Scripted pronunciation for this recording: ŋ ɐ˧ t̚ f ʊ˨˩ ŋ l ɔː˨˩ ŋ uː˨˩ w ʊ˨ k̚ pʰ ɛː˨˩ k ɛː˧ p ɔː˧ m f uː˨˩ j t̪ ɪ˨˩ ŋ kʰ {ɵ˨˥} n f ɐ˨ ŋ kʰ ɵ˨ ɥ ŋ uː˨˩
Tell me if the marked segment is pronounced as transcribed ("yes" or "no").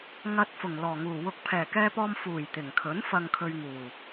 yes